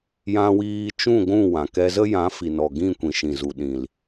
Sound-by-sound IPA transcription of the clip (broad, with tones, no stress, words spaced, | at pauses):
jã˧wiː˧t͡ʃũ˦˨ ɡʷũ˦˨wã˨kɛ˧ zə˦jã˨˦fi˨nɔ˨ ɡĩ˦˨kʷĩ˨ ʃĩ˨zu˨ ɗĩ˨l